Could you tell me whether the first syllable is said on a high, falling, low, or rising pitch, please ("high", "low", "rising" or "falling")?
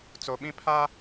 low